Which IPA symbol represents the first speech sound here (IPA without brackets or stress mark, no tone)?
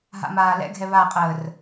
ɦ